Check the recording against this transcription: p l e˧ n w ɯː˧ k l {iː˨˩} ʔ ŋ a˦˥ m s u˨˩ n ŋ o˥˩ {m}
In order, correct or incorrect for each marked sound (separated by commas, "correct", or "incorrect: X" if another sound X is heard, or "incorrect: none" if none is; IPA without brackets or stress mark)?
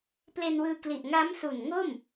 incorrect: i˨˩, correct